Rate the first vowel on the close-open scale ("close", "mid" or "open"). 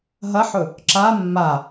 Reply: open